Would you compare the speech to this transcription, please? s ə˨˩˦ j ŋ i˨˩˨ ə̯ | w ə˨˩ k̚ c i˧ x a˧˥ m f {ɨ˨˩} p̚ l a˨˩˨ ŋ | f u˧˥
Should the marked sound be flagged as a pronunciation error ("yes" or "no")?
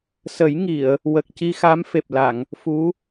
yes